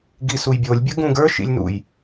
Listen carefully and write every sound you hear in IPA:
ɡisujbʲolʲ bʲəɡũɡə˞ ʃḭlʲnṵj

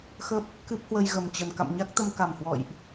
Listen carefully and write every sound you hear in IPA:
xə˦˥p̚ | kɨ˦˥p̚hwə˧j ɣə˨˩mt͡ɕə˨˩n ka̰˧˨mɲa˦˥k̚t̪ə˧m ka˨˩mhwɔ̰˧˨jʔ

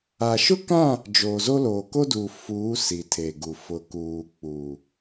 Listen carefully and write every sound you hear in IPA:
a˨ʃʊ˦kã˦˨ | d͡ʒoː˨zo˦loː˨ ko˦duː˨fuː˨˦ si˨tʰe˨ɡu˨ fʊ˨kuː˨ k͡pu˨

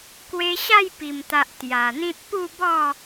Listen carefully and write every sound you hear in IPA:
kwe˧ɕa˥˧jpi˨˩mt̪a˨ʔ t̪ja˨˩n̪ĩ˦t̚ pu˥˧bɔ˥˧

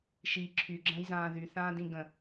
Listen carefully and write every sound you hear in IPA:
ʃi ǁʰyɡ͡ǁə̃ːjzãː ðyθãːdĩ ɡə̃

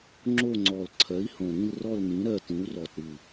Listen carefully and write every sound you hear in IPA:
ŋ͡ǁo˦˨ŋ͡ǀɔ˨˩l ǀʰɜ˩˥i̯hõ˨˩ɾĩ˦˨lrɔ˦˨l nĩ˩˥ɾɜ˦˨tĩ˩˥u̯rɔ˨˩t ɾɨ˨˩

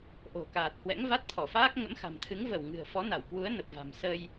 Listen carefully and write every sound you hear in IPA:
ʔo̤˨˩kaː˨˩t̚hwɛ̰˧˥ŋ va˦˥t̚t̪ʰɔ˧˩faː˦˥k̚ ŋə̰˧˥mxa̤˨˩mt̪ʰɨ˨˦ŋ və˧˩w ŋɨ̤˨˩ə̯fɔ˨˦na˧˩wkwu˨˦ə̯ nə˨˩p̚va̤˨˩m sə˧j

